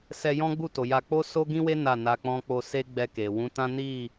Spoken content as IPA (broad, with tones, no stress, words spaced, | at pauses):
sɛ˧jɔ̃˦ɡ͡bu˦˨ to˨ja˧ k͡po˦so˦ɡĩ˦we˦ na˦˨na˧k͡pɔ̃˦ k͡po˧se˦ɡ͡bɛ˧ ke˨ wũ˨˦tã˦ni˦˨